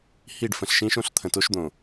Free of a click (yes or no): yes